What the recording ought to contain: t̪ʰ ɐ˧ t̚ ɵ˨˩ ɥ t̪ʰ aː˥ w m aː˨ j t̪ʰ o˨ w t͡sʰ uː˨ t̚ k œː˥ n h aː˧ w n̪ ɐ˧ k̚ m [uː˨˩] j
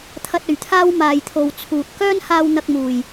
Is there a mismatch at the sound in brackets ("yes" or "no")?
no